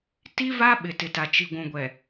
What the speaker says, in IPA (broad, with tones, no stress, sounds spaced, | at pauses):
t i˦ v a˦ ɓ ɪ˨ t ɪ˨ t a˨ t͡ʃ i˨ ɡʷ ũ˨ ɡʷ ɛ˨